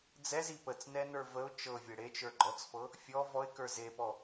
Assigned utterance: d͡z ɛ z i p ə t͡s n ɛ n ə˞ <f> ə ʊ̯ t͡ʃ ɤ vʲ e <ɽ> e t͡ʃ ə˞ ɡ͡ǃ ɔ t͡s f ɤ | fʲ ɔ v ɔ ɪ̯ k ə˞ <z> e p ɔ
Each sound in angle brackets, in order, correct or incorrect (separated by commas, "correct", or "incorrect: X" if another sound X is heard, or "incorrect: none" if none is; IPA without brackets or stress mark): incorrect: v, correct, correct